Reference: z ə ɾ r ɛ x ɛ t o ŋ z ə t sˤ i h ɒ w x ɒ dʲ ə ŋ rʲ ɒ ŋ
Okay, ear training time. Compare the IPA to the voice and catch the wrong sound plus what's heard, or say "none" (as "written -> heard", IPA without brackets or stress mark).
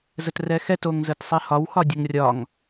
ɾ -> t